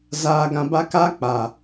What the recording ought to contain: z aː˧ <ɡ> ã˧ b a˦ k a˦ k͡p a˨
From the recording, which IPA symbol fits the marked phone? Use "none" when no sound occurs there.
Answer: ɡ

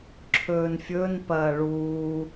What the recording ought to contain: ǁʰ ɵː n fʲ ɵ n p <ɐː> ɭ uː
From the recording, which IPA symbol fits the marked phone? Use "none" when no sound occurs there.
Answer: ɐː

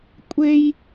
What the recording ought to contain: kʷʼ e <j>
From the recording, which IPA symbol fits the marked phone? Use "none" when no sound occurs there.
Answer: j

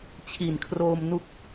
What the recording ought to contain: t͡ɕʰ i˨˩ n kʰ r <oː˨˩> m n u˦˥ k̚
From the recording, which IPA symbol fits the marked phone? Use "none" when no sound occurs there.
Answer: oː˧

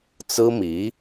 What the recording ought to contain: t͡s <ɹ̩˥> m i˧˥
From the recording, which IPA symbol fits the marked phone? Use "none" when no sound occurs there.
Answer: ɹ̩˥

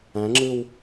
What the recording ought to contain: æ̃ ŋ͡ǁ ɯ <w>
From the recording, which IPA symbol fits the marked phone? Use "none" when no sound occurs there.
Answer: w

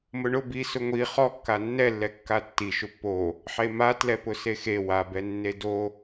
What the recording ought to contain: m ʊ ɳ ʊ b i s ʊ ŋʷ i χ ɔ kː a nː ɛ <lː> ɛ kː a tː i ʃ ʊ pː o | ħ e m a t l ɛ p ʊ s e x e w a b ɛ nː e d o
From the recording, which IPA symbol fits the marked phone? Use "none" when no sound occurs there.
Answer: lː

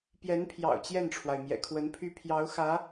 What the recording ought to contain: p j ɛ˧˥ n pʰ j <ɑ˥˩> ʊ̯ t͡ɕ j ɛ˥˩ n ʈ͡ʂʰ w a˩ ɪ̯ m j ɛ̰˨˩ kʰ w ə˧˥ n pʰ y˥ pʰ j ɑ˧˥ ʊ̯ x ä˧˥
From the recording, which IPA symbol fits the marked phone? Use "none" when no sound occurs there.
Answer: ɑ̰˨˩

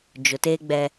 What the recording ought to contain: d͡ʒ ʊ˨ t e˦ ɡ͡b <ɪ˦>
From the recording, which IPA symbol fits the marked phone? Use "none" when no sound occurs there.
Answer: ɛ˦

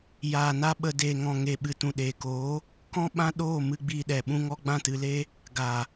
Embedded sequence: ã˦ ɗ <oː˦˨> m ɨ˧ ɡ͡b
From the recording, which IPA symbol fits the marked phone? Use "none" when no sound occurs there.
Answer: oː˦˨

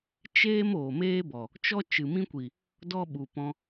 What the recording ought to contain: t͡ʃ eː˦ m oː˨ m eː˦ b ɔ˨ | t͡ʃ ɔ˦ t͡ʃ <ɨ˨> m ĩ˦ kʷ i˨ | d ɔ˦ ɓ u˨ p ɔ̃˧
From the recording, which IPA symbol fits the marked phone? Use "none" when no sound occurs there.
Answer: ɨ˨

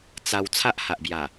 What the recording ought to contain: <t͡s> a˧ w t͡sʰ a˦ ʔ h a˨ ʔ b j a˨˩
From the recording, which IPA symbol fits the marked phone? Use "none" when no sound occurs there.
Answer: t͡s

